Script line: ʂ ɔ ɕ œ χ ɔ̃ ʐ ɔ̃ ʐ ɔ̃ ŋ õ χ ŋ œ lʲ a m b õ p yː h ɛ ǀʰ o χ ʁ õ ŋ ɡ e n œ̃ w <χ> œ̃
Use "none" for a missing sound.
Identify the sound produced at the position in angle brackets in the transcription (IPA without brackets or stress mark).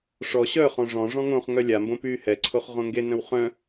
χ